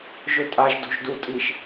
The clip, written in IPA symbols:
ʒ ʊ tʼ a ʒ d o̤ ʒ d u tʼ i ʃ

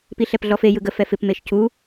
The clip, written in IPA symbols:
p i ɬ ɛ p ɮ ɔ f e j ɯ ɡ ə f ɛ f ɪ p m e ʃ c u

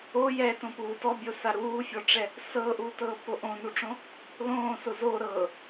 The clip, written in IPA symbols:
o j ɛ t õ p uː t ɔ bʲ o s a ɾ uː fʲ ɔ ʈ͡ʂ ɛ | s ɤː ʔ uː t ɤː p o ʔ õ n u ʈ͡ʂ õ | l õː s o z o ɾ ɤː

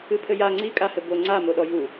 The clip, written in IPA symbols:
ɨ pʰ ɘ j a ŋ͡ǀ i kʼ a h ɘ b o ŋ͡ǀ a m o ɗ ɔ j u

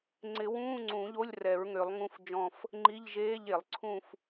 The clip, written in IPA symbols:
ŋ͡ǀ ɪ˨˩˦ w ũː˧˥˧ ŋ͡ǀ ũ˨˩˦ ʎ o˧˥˧ lʲ r ɛ˨˩˦ ɹ ŋ ø˨˩˦ lˠ ŋ ũ˧˥˧ f d͡ʒ ɔ̃˦˨ f | ŋ͡ǃ i˧˥˧ ʎ ʒ eː˧˥˧ ʎ e˨˩˦ lˠ ǀʰ ũ˦˨ f

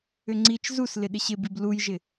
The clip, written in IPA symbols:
ʏ ŋ͡ǀ i t͡ʃ z u s l ɪ ɗ ɪ ɕ ɪ b i b l u j ʒ ɪ

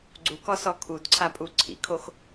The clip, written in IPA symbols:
ɡ͡ǀ u k ɔ s ɔ kʰ u d ǀʰ a pʼ u ǀʰ ḭ kʰ o x

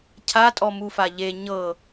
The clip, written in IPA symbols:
cʰ a tʼ ɔ m u f a ʎ e ɲ ɤ

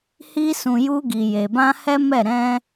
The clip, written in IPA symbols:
h i˧ s ũ˨ j u˧ ɡ i˨ j e˨ b ã˧ h ɛ˦ m ɛ˦˨ ɾ ɛ̃˧

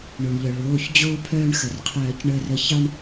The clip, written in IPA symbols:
ɳ o˩ ɳ ʎ œ˩ ɭ oː˩˧˩ ç d͡ʑ oː˧ pʰ œː˧ ɳ x ə˩ r qʰ œː˨˩˦ c ɳ əː˧ r ə˧ ç ɑ˧ ɳ

